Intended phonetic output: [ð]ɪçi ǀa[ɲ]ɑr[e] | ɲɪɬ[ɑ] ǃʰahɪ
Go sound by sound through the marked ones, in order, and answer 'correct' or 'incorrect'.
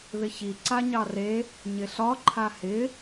correct, correct, correct, incorrect

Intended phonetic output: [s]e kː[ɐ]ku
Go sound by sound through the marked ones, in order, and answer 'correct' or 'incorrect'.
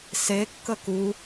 correct, incorrect

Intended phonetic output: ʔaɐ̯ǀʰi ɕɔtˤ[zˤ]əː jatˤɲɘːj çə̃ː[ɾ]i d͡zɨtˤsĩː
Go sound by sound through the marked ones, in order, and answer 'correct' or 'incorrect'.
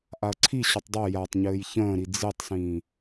incorrect, correct

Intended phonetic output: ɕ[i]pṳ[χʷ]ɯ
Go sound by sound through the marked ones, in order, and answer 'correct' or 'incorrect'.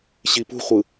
correct, correct

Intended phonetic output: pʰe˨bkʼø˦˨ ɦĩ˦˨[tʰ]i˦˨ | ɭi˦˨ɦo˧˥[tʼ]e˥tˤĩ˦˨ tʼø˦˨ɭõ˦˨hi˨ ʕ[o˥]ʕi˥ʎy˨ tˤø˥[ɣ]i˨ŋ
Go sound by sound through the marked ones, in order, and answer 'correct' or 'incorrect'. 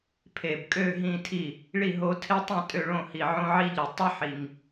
correct, incorrect, incorrect, incorrect

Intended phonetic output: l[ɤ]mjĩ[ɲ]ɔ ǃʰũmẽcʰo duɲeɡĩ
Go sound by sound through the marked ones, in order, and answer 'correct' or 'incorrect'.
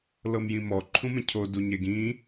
correct, incorrect

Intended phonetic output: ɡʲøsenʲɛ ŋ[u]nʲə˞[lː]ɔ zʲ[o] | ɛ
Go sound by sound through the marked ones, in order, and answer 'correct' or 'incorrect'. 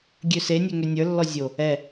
incorrect, correct, correct

